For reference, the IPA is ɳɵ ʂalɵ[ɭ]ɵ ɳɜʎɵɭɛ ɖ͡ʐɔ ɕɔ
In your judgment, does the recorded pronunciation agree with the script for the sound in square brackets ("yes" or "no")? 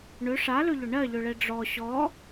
no